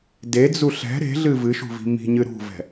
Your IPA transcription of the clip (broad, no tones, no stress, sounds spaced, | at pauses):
d e d͡z u ɬ ɛ̤ ɾ e̤ ɮ ɨ v ɨ ʃ ṳ v i̤ m i̤ ɲ ɨ ɾ ṳ v ɛ̤